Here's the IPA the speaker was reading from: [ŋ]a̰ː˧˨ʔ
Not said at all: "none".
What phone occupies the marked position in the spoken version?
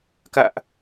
k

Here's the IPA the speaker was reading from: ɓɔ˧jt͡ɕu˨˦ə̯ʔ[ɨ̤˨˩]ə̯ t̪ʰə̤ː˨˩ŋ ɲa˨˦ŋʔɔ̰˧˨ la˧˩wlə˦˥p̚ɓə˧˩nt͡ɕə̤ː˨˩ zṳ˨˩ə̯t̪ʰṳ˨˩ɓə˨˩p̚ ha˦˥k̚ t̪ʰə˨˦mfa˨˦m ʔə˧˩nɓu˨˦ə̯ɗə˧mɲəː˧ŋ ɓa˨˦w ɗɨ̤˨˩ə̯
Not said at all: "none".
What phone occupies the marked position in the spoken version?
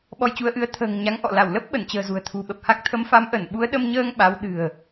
ɨ˨˦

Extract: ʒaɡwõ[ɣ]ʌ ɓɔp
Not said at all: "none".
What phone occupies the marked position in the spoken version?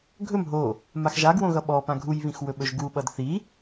ɣ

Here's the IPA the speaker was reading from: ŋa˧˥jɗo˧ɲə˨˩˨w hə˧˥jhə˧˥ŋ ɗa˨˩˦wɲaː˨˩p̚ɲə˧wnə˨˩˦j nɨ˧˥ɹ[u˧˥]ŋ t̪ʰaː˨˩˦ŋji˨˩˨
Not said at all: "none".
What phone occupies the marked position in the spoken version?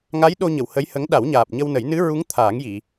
u˧˥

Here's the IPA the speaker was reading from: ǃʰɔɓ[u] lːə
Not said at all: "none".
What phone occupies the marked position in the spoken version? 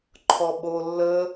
o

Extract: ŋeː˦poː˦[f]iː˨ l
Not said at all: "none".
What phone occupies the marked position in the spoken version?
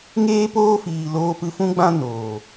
f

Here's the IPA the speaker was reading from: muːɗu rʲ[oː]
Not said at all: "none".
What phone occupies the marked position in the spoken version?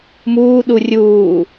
uː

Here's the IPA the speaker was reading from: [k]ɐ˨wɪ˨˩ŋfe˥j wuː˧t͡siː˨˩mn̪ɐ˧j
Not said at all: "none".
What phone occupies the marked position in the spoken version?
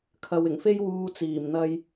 kʰ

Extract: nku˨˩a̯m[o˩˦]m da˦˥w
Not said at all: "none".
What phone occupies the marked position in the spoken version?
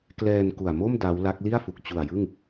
o˥˩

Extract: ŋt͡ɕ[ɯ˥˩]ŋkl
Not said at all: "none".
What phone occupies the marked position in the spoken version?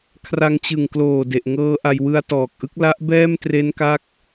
ɯ˨˩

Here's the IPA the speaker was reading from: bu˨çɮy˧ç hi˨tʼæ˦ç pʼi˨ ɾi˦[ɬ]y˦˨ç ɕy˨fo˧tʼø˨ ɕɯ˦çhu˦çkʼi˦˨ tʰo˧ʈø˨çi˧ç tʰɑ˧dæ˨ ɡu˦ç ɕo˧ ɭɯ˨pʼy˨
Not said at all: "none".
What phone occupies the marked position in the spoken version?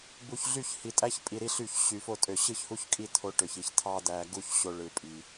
ɬ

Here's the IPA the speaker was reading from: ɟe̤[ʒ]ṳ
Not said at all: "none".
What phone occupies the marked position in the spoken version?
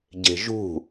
ʒ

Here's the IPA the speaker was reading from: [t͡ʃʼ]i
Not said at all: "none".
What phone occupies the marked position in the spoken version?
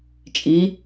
t͡ʃʼ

